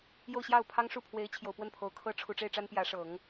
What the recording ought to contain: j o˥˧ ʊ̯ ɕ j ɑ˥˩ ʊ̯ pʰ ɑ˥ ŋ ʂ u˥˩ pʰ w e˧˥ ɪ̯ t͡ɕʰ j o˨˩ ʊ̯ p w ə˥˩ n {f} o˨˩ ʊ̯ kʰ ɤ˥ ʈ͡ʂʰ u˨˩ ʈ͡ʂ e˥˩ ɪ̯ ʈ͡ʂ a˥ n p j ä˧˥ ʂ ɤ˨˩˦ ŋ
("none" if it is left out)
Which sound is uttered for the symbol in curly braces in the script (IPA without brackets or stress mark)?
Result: pʰ